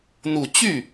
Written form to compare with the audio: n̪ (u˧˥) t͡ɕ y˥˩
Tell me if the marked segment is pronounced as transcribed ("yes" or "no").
no